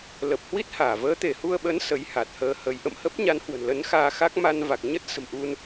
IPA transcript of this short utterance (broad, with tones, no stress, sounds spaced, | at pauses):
l ə˨˩ p̚ h w i˦˥ t̚ h aː˧˩ v əː˨˦ t̪ e˧˩ h u˧ ə̯ ɓ ə˨˦ n s ə˨˦ j h a˨˩ t̚ h əː˧ h ə˨˦ j ʔ ə̰˧˨ m h ə˦˥ p̚ ɲ a˨˦ n h w ə̤˨˩ n l ə˨˦ n x aː˧ x a˦˥ k̚ m a˧ n v a˨˩ k̚ ɲ ə˦˥ t̚ s ə̤˨˩ m ʔ u˧ n